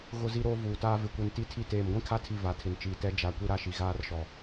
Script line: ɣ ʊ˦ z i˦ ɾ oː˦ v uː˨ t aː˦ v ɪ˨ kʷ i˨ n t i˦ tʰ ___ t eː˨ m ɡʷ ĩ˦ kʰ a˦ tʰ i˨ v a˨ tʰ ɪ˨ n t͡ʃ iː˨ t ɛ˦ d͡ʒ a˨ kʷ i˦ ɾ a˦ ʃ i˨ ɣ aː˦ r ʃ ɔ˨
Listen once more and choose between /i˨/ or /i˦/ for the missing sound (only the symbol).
i˦